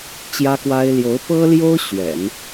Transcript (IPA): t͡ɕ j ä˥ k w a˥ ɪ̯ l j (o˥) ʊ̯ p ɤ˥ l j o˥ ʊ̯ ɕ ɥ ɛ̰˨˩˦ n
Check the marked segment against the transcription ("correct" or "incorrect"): incorrect